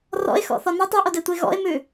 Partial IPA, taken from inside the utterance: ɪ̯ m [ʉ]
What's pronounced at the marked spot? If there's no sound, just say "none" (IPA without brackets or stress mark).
ʉ